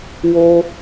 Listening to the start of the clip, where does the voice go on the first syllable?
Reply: high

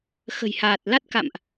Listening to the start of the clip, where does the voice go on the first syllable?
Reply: low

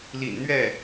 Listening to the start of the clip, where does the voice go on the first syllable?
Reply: low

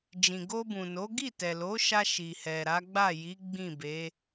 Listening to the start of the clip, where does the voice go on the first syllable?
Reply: low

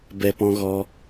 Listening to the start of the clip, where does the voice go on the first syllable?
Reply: high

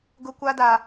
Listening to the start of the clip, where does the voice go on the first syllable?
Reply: high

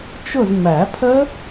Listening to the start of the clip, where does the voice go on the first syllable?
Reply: falling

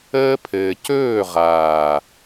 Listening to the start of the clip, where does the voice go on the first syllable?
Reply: high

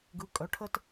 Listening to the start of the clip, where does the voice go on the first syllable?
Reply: rising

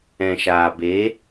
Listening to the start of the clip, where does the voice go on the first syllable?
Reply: low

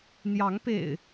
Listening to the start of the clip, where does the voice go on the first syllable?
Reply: rising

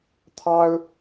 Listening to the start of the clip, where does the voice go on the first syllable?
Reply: high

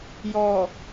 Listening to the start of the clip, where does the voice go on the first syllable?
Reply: low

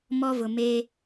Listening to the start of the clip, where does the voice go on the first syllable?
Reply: high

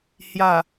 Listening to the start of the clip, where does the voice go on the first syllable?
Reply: low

